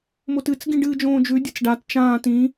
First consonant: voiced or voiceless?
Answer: voiced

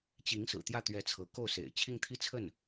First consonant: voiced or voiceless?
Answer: voiceless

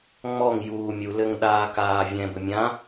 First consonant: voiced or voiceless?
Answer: voiced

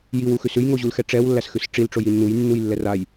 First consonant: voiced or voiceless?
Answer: voiced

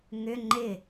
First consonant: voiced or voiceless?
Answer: voiced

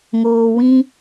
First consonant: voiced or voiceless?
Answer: voiced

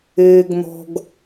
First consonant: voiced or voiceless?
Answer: voiced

